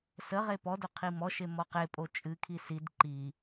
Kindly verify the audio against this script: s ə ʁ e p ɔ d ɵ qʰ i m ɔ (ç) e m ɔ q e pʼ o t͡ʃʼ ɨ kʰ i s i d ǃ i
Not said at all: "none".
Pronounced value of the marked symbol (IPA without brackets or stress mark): ʃ